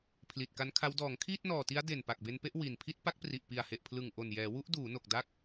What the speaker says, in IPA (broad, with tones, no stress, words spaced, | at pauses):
pʰli˨˩t̚ka˦˥nkʰa˦˥w dɔː˩˦ŋkʰiː˥˩t̚nɔː˨˩ti˦˥a̯ de˨˩n pa˨˩k̚be˧npe˥˩ʔ wi˨˩n pʰi˥˩t̚ pa˦˥k̚pri˨˩ʔpi˨˩a̯ he˨˩ʔpʰlɯ˨˩ŋʔo˨˩njɛː˩˦ wu˦˥ʔduː˩˦no˨˩k̚ da˦˥k̚